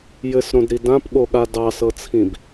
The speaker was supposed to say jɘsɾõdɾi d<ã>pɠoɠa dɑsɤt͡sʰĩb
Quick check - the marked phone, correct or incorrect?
correct